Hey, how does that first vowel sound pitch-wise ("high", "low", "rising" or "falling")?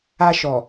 high